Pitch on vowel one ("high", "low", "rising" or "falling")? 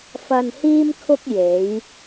low